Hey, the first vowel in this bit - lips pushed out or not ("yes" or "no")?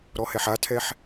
yes